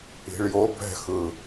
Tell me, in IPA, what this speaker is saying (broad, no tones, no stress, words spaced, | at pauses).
i̤ɭjo bɛ̤xɯ